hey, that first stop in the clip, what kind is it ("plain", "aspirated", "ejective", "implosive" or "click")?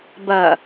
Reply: plain